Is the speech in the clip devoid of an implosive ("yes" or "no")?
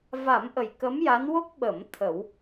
no